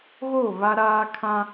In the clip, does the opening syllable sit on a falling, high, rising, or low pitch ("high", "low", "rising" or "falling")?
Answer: falling